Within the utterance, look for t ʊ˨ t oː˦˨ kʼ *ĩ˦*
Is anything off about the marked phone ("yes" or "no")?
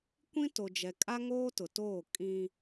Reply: no